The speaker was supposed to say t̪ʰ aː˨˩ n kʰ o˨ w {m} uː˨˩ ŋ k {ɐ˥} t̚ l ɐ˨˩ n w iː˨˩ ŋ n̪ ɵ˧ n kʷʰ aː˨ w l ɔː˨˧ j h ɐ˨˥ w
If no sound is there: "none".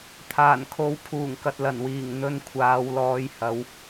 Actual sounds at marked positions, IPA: pʰ, ɐ˨

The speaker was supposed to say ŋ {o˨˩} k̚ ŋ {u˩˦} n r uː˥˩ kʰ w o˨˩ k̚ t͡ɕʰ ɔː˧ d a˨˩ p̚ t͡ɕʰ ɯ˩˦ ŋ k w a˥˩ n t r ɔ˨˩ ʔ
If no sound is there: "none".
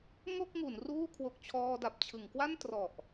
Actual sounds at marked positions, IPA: o˥˩, u˩˦

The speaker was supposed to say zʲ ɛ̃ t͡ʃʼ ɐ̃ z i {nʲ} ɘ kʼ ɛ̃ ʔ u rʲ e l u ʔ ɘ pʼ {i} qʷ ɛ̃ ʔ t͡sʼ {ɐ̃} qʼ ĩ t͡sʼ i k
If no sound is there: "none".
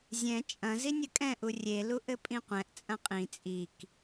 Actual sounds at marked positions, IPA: nʲ, ĩ, ɐ̃

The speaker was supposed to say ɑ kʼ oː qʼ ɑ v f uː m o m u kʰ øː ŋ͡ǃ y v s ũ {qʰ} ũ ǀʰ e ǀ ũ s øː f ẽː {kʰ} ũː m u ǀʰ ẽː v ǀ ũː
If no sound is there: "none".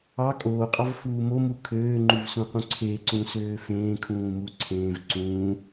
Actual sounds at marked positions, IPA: q, kʰ

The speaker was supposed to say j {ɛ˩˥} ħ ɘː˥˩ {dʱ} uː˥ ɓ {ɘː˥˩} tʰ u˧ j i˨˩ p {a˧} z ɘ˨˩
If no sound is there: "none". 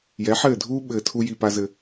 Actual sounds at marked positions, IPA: ɛ˩˥, dʱ, ɘː˨˩, a˧

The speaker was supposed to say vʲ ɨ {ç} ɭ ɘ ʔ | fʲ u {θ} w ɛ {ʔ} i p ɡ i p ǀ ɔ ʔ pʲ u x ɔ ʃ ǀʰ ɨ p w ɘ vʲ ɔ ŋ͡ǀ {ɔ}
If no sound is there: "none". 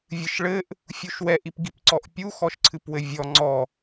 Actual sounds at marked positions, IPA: ʃ, ʃ, ʔ, ɔ

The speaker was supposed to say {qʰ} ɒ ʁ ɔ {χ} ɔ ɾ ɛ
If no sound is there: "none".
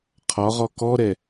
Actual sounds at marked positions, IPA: qʰ, k

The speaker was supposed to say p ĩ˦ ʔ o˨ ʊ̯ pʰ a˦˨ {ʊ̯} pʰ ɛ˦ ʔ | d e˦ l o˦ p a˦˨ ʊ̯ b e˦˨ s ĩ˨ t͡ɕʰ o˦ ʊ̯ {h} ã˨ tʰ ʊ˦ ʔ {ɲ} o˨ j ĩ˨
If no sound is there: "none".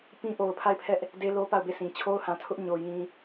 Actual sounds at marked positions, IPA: ɪ̯, h, ɲ

